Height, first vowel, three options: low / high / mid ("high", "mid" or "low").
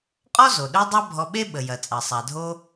mid